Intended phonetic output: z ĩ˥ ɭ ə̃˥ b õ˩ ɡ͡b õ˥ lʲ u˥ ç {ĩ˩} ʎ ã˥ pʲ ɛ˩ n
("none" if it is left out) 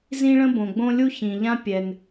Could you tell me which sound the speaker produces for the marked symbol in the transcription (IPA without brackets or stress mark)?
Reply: ĩ˩